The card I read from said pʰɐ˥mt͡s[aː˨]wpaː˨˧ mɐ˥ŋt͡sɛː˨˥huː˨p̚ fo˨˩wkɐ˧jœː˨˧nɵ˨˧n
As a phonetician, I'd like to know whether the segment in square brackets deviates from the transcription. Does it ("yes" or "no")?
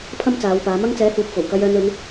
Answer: yes